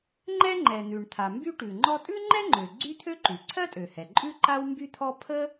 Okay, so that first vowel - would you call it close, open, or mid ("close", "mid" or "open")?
mid